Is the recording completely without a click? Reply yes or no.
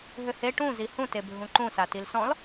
no